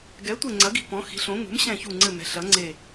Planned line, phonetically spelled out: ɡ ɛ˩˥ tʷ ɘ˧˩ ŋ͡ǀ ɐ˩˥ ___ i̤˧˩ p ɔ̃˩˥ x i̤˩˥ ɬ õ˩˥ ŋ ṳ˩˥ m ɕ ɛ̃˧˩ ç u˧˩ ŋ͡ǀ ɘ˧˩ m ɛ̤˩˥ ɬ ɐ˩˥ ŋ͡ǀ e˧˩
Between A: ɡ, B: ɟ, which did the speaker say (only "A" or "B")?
A